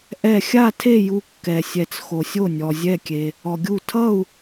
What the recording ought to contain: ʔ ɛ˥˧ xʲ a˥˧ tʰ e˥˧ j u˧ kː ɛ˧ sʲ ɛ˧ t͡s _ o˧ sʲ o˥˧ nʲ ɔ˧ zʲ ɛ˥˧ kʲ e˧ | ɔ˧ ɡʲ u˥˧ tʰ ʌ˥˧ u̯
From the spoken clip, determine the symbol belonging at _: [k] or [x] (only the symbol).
x